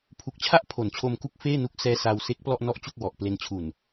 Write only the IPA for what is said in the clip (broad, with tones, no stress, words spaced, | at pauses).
pʰu˨˩k̚t͡ɕʰa˦˥ʔ pʰo˩˦nt͡ɕʰo˧mku˦˥k̚ feː˥˩nu˦˥k̚sɛː˦˥ sa˧wse˦˥k̚ plɔ˥˩ʔnɔ˥˩ʔt͡ɕu˥˩k̚wɔ˨˩ʔ ple˧nt͡ɕʰu˨˩n